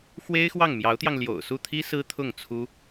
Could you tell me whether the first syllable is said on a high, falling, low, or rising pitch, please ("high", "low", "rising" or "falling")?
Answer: high